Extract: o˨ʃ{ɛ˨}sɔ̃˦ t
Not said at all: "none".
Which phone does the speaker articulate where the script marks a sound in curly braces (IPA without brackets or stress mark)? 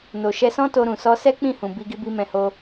ɛ˧